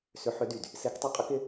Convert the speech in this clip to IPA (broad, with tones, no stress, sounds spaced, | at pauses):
s ʏ˨˦ ħ ʏ˨˦ d y˨˩ d | s e˨˦ k tˤ ʏ˨˦ qʼ ə˨˦ k ɪ˨˦